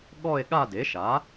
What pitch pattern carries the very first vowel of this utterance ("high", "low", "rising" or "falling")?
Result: falling